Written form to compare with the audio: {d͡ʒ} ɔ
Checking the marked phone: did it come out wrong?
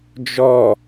no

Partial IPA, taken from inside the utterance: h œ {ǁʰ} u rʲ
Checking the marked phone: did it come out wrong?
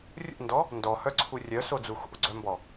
yes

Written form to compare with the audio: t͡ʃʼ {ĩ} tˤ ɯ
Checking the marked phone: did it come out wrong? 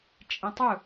no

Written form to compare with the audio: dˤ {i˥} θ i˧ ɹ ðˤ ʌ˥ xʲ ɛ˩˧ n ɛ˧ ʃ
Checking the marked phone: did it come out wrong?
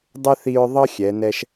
yes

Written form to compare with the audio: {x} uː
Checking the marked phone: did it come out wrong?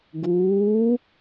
yes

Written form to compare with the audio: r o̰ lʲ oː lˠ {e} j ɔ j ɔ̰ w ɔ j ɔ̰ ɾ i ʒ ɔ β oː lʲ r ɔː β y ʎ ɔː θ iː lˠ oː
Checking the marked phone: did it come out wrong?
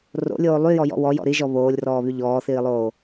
yes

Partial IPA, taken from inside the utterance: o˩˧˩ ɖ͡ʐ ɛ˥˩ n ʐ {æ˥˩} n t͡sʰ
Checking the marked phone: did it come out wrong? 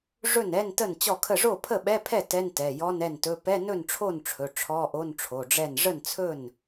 yes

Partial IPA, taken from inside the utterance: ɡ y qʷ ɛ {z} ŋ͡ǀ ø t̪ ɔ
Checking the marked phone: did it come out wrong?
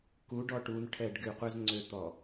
no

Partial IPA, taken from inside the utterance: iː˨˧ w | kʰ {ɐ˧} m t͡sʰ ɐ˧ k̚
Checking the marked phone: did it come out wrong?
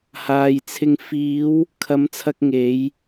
yes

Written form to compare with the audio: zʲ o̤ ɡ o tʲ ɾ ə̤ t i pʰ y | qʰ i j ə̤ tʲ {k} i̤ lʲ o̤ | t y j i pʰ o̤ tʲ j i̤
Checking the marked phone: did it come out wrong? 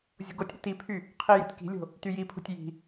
no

